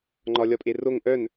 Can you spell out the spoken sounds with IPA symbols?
ŋ͡ǃ ɒ lʲ ɒ pʼ e r o ŋ ʔ œ n

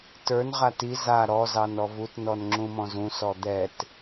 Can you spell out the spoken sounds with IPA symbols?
t ə˞ n ʁ a t i z a ɾ ɔ z ɑ n ɔ v u t n ɔ n ŋ͡ǁ ũ m ɔ̃ z ũ s ɔ d̪ ɛ t

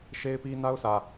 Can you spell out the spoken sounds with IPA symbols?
ʃ e˦ ɪ̯ p i˦ n a˦ ʊ̯ sʰ ä˨

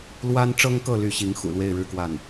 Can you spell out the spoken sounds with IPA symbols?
l w a˥ n ʈ͡ʂ ɤ˥ ŋ k ɤ˥˧ l y˥˩ ɕ i˧˥ ŋ x ṵ˨˩ l w e˥˧ ɪ̯ ɻ ɻ̩˥˧ k w a˥˩ n

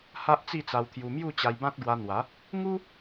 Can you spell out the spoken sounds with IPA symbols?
h a˦ ʔ t͡s i˥˧ t͡s a˧ w t̪ʰ j u˧ m j u˥˧ t͡ɕ a˧ j b ã˦ t̚ ɡ w a˧ n̪ w a˨˦ | ŋ u˦

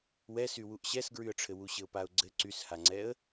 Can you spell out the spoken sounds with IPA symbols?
w ɛ s y w u ʔ ɕ ɛ s ɡ ɹ y ə̯ ʈ͡ʂʰ ɘ w u ɕ ɘ ʊ̯ p a ʊ̯ ɡ͡ǀ ɘ ǀ y s h a ŋ͡ǀ ɛ ə̯

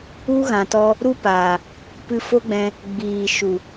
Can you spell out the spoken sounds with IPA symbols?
u˦ ɣ ã˨ t ɔ˧ | ɾ u˦ p aː˨ | p ɨ˧ f o˦ ɡ͡b ɛ̃˧ | ɡ͡b iː˨ ʃ u˨

